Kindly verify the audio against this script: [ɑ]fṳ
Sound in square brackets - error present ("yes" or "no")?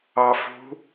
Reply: no